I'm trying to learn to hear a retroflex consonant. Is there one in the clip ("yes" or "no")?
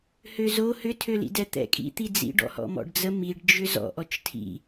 yes